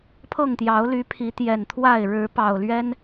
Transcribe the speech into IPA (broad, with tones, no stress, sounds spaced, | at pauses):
pʰ ɤ˥˨ ŋ t̪ j ɑ˨˦ ʊ̯ l y˨˦ pʰ i˨˦ t̪ j ɛ˨˩ n t̪ʰ w a˥˨ ɪ̯ ɻ ɻ̩˨˦ p ɑ˨˩ ʊ̯ l ɥ ɛ˦ n